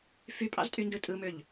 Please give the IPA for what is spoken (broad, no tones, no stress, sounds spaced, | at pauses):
f y pʼ ɑ̰ z tʼ y n d ɯ tʼ ɯ m ø ʎ